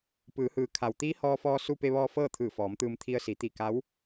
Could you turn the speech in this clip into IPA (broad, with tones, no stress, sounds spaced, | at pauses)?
p ɯː˩˧ h ɯː˩ kʰ a˩ w t̪ iː˧˥ h ɔː˧ f ɔː˧ s u˧ p e˧ ʋ ɔː˧ f ɤː˥˨ t̪ʰ ɯː˧˩ f ɔː˩˧ m t̪ ɯː˧ m t̪ʰ i˧ ə̯ s i˩˧ t̪ i˧˩ k a˧˥ w